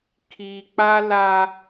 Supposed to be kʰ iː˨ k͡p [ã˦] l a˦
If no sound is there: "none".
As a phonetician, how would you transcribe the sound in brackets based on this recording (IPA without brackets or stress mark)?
a˦